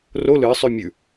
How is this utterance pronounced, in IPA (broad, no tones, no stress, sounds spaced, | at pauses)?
r o l ɨ sˤ ʉ mʲ ʉ